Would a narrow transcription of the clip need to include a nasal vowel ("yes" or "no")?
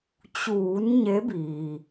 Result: no